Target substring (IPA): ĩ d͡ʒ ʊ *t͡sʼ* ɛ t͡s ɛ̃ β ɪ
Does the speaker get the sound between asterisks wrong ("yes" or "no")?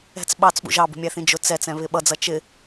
yes